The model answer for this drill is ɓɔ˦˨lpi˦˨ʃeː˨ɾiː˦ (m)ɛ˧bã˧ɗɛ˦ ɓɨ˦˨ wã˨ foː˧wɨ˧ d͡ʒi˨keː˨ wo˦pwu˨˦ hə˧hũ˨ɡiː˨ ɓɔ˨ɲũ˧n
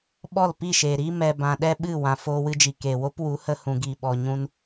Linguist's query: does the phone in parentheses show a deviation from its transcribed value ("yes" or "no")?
no